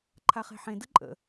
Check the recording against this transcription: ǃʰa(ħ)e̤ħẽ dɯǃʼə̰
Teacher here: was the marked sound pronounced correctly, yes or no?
no